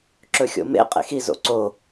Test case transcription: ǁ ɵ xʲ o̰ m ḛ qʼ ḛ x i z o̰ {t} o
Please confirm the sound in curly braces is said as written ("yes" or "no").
no